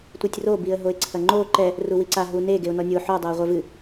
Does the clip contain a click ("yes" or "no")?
yes